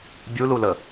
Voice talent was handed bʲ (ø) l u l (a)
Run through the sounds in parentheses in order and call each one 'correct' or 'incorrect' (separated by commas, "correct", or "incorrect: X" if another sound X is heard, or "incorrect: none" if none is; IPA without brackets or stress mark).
incorrect: u, incorrect: ə